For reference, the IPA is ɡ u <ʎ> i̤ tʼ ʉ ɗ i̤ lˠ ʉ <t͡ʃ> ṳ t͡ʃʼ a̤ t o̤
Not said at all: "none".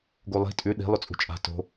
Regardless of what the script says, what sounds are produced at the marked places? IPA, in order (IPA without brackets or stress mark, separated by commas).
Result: lˠ, t͡sʼ